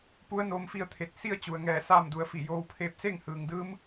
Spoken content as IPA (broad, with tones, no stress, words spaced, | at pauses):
pu˧˥ə̯noː˧mfi˧ə̯t̪ʰe˧˩t̚ si˥˨ə̯t͡ɕu˩ə̯ŋɛː˧˩ saː˥˨mdu˩˧ə̯fi˧˩ joː˧˥wpʰeː˥˨p̚ se˥˨ŋhɯː˩ŋdɯː˧˥m